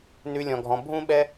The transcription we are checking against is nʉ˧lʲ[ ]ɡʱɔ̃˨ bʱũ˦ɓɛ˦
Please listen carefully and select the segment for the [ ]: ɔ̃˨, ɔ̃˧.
ɔ̃˨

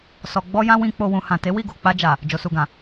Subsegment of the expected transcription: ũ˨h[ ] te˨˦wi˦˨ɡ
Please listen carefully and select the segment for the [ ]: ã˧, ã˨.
ã˨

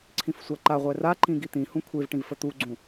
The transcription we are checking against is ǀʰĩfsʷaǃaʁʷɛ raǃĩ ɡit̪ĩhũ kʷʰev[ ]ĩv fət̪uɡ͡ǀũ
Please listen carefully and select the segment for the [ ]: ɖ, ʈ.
ʈ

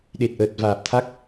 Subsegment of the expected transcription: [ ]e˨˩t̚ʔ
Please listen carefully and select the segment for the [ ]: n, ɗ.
ɗ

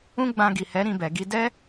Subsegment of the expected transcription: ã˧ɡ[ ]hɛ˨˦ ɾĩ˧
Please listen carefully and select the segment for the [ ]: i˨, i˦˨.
i˨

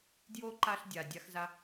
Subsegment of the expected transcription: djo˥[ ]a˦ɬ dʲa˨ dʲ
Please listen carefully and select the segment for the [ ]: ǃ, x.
ǃ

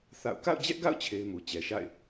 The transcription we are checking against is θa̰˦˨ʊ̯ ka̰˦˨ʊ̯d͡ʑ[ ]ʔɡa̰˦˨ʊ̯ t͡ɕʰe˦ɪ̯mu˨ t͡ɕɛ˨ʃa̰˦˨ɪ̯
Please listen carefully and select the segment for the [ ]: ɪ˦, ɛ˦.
ɛ˦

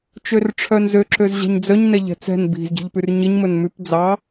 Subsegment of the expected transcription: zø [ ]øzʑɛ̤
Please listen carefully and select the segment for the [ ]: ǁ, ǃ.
ǁ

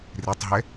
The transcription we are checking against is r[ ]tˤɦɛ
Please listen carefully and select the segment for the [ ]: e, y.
e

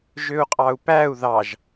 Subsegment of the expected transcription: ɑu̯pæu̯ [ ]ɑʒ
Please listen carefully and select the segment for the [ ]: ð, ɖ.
ð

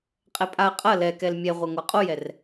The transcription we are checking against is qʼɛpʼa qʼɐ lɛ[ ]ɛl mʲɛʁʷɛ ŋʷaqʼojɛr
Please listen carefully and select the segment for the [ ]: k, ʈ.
k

